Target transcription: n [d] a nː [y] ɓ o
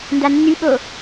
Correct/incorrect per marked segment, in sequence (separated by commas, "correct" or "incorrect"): correct, correct